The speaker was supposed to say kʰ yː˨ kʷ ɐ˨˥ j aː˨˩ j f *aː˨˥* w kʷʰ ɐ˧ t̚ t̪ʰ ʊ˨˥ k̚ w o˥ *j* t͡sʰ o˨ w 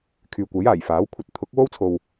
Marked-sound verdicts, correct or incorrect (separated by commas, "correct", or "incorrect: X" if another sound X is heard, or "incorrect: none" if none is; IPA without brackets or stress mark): correct, incorrect: w